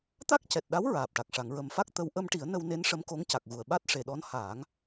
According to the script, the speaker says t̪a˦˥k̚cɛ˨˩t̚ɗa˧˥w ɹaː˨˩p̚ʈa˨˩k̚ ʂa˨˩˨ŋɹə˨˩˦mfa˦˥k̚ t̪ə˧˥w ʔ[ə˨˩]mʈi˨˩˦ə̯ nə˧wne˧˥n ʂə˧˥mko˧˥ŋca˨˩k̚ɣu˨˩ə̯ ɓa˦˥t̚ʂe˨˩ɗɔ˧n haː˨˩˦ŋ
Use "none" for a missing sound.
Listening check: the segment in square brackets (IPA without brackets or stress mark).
ə˧